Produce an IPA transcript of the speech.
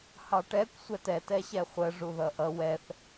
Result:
h ɑ ʈ ɛ kʷ sʷ ɛ t ɛ t ɛ ɕ ɛ χʷ ə ʐ u ð ʌ ʔ ʌ w ɛ θ

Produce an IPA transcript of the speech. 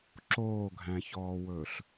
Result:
ǁ oː ɡʱ æ̃ ç ɔː w ɵː ɬ

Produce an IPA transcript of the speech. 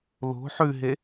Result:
l o̤ ħ ʉ ɦ e

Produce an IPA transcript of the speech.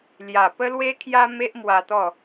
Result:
l j a˨˩ p ə˦ l w e˦ kʰ j a˦ m e˦ ʔ m w a˧ t̪ ɔ˥˧

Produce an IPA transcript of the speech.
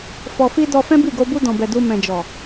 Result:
f ɔ˨ f i˧ d ɔ˧ f ɛ̃˦ b i˦˨ ɡ o˧ b u˧ d ɔ̃˨ b ɛ˨ d u˧ m ɛ̃˨ d͡ʒ ɔ˨

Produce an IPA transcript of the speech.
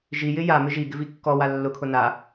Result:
ʒ i j ɪ j a m ɪ ʒ i ɡ ɪ v i kː ɔ w a lː ʊ kʰ ʊ n a

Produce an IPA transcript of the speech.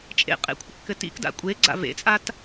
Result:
t͡ʃʼ ḛ qʼ ḛ kʷʰ ɘ kː ɘ t ḭ k d a̰ kʷʼ e ɡ͡ǀ a̰ v ḛ t͡sʼ a t

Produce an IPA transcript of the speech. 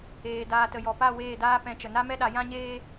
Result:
eː˨ d aː˨ t ə˨ j ɔ˨ p a˦˨ w eː˦˨ d aː˦ p ɛ̃˧ t͡ʃ ə˨ n a˦ m ɛ˦ ɗ a˨˦ j ã˦ ɲ eː˦

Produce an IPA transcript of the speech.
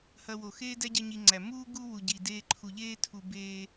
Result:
h ɐ˧ w o˨ x eː˦ d æ˦ ɟ ɐ˦ ɲ i˧ ŋ͡ǀ æ˨ m uː˦ ɡ u˧ w u˨ ɟ i˨ d eː˧ ǃʰ u˨ ʎ eː˦ tʰ u˨ b eː˧

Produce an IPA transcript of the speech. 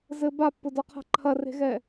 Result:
z ɘ b a pː ʊ d ɒ qʰ a̤ ǃʰ ɐ r e̤ ɣ ɛ

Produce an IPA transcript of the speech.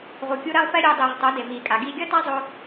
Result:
ʁ u˨ kʲ u˧ ɾ ɛ˧ lˠ p ɛ˦ ɾʲ o˧ dˤ iː˨ ʁ tˤ o˨˦ d e˨ m iː˨ kʼ a˨ ɡ iː˨ ɡʲ ʌ˧ t a˧ zˤ o˦

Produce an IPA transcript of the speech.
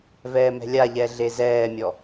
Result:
v ɛː m ɛ̤ lʲ a ʎ ɛ ɮ e z ɛː mʲ ɔ

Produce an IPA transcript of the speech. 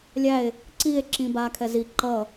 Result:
lʲ æ e̯ | ǀ i e̯ ǁ ĩ b a kʰ ɛ z i ǃ ʌ

